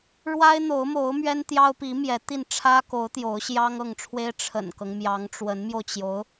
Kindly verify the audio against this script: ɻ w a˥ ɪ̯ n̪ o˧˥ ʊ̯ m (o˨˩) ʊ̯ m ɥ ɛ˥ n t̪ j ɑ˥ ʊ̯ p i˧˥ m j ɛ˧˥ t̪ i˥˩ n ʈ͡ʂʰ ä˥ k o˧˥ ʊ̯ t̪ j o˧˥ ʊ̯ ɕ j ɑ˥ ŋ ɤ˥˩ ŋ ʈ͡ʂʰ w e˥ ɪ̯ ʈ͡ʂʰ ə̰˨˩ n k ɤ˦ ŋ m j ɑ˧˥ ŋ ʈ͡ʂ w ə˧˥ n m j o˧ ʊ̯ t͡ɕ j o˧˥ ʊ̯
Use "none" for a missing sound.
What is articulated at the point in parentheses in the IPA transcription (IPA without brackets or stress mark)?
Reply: o˧˥